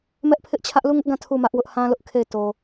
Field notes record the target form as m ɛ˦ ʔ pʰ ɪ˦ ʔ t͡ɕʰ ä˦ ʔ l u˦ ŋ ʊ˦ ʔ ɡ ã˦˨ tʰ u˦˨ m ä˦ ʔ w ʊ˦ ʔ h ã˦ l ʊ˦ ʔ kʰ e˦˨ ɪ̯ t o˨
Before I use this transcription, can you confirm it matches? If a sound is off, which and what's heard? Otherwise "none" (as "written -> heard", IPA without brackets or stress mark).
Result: none